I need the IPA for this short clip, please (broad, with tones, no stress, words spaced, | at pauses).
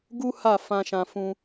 ɡu˦ ha˦˨ fã˧ʃã˧fũ˧